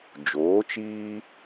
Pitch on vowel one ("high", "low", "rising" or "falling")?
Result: rising